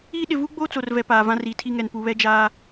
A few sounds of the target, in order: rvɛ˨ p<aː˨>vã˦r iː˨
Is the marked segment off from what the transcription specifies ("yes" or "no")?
no